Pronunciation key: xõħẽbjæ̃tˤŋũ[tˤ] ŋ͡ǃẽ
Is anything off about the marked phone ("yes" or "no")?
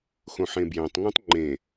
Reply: no